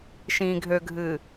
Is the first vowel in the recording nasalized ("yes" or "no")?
yes